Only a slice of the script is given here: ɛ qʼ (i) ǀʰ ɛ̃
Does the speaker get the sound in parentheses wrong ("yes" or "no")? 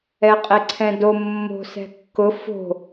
yes